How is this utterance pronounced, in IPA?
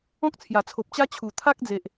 ɔ̃˦k̚t͡sʰja˨˩t͡sʰo˨p̚t͡ɕa˦ t͡ɕʰu˨˩t̪ʰa˦k̚d͡ze˨ʔ

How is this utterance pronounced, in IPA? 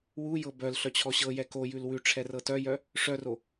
wujɤ bœl ɬœt͡ɕʰɔɕɤjɛ kojʉl wʉ ʈ͡ʂʰɛrɤtœjœ | ʂœro

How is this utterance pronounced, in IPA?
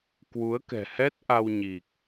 kwu˨˦ə̯kɛ̤˨˩hɛ˦˥t̚ ʔa˧wɲi˨˩k̚

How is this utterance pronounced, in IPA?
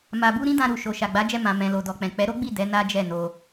ma˨bu˧ ɾĩ˦dã˧ɾu˨ʃo˨ ʃa˨ɡ͡ba˨˦d͡ʒɛ˧ mã˨ mɛ̃˨lo˨dɔ˨k͡pɛ̃˨ k͡pɛ˨˦ɾo˦ɡ͡bi˦˨ dɛ˨˦ na˦d͡ʒɛ˦˨no˧

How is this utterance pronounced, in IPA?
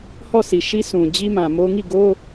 hɔ˦˨sʰi˨ʃi˦ sũ˨ d͡ʑi˦mã˨mo˦ ŋi˦˨ɡo˦

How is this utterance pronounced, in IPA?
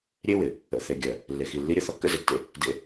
ɾʲe˦ wɪ˨ | ə̰˨θe˨ɡʲɜ˨ | lːe˨xi˨lːi˦ɾʲə˦ θɔ˦kːə̰˦ze˨tːḛ˦ | dḛ˦

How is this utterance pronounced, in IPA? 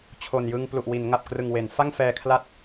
t͡ɕʰo˨˩njɯ˧ŋ plu˨˩ʔwi˩˦nŋa˨˩p̚ krɯ˨˩ŋwe˩˦n fa˥˩ŋfɛː˧kʰla˦˥t̚

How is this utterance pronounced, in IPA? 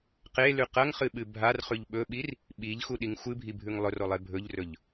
qelʉ qɐŋχɨɓɨ bʱarχʉʎ ɓɵɓir | ɓiʎxuɗiŋ xʷɨbʱibʱʉŋ lˠɵrolˠe bʱɵʎrɵʎ

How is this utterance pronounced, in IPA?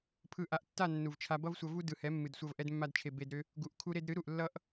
pʰɯ˨ʔa˨ʔtːa˦˨ nːu˨vt͡ʃʰa˧ bʌ˦vsʷʌ˧vu˦ dɯ˨hɛ˨˦mːɨ˨dsʷʌ˧v ʔɛ˦dmːa˦dt͡ʃʰe˧ be˧dɾʏ˦ | ɡu˨ʔ kʰu˧ɾe˧d ɾɨ˨˦ ɾu˨ʔlːʌ˦ʔ

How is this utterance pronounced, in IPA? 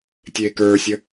tʲeːkə˞sʲə

